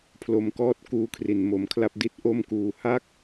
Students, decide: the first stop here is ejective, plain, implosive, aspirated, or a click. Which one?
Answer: aspirated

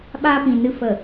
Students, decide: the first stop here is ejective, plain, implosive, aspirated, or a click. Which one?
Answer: implosive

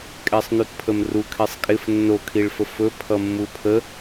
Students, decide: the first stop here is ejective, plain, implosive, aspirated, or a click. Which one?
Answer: ejective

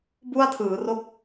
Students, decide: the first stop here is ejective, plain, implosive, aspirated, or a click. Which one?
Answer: plain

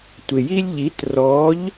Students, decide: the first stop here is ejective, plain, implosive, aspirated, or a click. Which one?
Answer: plain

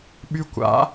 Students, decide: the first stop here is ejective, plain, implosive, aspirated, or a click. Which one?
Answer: implosive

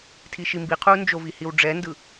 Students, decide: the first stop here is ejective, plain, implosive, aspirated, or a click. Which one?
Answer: aspirated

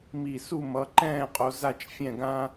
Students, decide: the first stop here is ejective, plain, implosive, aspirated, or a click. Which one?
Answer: click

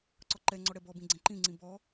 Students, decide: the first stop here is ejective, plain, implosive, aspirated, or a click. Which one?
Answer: click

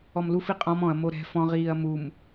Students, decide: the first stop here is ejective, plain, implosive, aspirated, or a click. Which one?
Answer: ejective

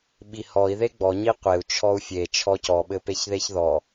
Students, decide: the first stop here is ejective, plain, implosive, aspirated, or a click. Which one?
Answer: implosive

